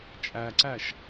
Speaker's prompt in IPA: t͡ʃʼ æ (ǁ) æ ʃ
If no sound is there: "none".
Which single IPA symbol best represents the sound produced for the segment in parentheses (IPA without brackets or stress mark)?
ǀ